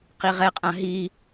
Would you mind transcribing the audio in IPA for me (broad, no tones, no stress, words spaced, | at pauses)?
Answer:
qiʁɛqʼã ɦi